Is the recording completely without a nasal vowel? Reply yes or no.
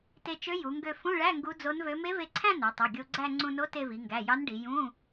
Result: no